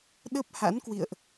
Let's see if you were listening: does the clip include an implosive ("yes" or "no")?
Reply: yes